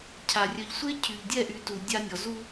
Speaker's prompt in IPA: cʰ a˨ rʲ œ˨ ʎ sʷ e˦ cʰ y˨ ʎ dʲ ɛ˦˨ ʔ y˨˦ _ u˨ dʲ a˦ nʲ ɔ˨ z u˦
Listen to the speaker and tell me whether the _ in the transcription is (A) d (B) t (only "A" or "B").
B